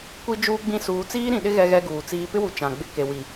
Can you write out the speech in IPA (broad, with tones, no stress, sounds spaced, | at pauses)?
kʷ i˦ d͡ʒ uː˦ ɡ͡b ĩ˦ s uː˨˦ t͡s iː˦ ɾ ĩ˨ ɗ ɪ˦ ɣ ɛ˦ ɣ ɛ˦ ɡ uː˨ t͡s iː˦ p ɪ˦ w u˨ t͡ʃ ã˨ ɡ͡b ɪ˦ k e˨ w i˨